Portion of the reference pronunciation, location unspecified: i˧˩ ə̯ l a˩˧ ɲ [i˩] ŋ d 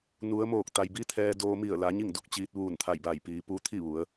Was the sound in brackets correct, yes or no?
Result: no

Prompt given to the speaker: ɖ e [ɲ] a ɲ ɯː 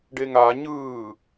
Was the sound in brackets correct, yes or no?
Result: no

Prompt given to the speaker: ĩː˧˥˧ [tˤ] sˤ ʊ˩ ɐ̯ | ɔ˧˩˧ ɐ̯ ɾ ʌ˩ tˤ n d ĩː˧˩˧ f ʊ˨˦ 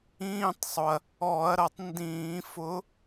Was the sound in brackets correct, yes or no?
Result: yes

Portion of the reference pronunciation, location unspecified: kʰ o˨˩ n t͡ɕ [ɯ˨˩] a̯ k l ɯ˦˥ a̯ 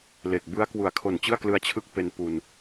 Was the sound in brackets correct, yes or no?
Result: no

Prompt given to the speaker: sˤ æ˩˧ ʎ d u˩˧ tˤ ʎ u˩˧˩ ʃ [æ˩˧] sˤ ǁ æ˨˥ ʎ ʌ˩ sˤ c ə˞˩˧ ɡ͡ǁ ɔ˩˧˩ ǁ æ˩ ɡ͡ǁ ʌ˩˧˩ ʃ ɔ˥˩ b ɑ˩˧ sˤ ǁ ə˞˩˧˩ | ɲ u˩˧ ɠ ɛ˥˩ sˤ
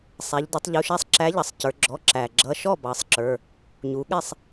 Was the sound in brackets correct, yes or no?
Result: no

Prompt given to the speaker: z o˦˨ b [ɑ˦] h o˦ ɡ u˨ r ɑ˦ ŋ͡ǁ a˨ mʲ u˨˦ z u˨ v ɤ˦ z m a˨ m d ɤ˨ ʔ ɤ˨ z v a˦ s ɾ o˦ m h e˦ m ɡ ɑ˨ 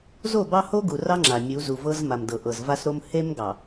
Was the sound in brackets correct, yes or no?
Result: yes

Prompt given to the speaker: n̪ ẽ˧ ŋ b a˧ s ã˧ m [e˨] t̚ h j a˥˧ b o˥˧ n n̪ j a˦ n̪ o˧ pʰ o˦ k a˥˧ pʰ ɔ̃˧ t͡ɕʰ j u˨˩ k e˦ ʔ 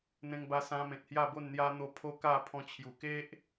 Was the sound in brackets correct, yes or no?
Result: no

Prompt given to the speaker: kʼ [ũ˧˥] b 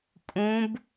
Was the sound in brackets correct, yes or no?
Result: yes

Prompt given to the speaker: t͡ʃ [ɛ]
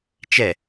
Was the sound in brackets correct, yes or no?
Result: yes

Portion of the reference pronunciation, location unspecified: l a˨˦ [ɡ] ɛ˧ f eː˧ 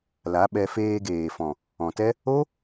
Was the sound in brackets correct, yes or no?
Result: no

